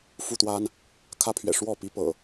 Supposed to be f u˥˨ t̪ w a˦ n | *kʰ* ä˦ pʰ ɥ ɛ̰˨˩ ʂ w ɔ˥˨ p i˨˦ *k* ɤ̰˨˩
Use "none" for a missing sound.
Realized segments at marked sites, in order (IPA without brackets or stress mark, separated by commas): kʰ, p